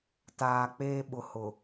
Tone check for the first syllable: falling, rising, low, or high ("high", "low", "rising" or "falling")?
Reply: low